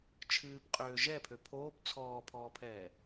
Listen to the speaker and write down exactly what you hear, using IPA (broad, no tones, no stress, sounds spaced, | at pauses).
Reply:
t͡ʃʰ ɨː p qʼ øː ʒ ɛ pʰ ø pʰ oː p t͡sʰ ɔː pʰ ɔː pʰ ɛː